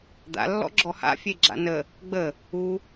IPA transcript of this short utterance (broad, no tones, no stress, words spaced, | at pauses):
d̪a̰lːɔ̰ ɡ͡ǁɔha̰fʲe ɡ͡ǁa̰nə | ɡ͡bə | u